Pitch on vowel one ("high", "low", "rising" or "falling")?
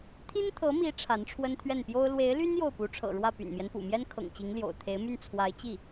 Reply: high